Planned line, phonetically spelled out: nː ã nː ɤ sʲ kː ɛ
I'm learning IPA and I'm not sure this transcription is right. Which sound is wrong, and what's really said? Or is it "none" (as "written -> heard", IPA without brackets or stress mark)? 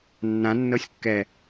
none